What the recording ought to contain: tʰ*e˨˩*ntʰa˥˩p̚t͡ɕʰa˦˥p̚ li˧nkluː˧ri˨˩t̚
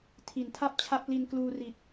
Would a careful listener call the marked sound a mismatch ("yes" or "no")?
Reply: yes